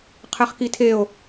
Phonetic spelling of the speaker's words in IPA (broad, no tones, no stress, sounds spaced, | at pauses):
qʰ ɛ χ k i tʰ e o̯